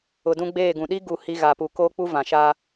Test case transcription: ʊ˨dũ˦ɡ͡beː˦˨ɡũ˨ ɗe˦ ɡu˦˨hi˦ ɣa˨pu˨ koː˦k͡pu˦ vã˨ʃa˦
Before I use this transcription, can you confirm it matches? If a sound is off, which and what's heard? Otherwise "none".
e˦ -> i˦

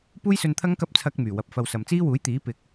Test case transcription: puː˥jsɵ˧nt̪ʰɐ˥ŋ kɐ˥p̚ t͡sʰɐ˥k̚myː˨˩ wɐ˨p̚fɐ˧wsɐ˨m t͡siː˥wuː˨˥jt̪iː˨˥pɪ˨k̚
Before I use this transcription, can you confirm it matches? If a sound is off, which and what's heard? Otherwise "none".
none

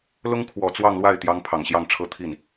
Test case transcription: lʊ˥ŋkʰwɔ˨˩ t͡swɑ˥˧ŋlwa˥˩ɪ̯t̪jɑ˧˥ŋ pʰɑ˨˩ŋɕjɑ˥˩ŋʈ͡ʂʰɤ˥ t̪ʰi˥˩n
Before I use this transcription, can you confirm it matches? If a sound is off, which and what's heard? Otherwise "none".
none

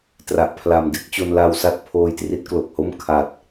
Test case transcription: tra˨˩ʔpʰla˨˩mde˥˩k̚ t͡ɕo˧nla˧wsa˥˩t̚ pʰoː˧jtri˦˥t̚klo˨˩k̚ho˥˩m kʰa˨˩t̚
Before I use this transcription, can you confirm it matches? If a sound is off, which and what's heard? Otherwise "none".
none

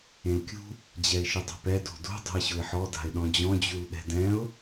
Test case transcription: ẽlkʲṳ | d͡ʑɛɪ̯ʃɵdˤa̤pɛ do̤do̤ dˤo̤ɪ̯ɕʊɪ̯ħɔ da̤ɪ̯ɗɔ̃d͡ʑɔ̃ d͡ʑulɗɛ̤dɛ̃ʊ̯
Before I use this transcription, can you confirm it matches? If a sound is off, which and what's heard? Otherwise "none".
ɵ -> ʊ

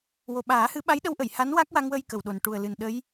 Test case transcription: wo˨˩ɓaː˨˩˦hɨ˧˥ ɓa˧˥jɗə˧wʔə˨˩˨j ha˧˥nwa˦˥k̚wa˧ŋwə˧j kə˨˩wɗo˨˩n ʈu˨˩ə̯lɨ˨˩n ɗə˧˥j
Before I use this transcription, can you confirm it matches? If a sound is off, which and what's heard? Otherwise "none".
none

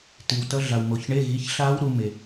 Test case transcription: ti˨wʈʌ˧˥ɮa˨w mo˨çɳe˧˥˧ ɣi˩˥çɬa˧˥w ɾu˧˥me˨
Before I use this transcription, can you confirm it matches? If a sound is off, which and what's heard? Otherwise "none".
ʈ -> t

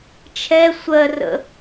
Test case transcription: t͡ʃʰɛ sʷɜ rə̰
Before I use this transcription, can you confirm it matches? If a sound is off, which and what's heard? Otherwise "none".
none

